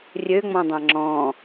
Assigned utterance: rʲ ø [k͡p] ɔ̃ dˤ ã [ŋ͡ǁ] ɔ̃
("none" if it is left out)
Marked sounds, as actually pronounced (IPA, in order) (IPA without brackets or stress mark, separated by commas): ŋ͡m, ŋ͡ǁ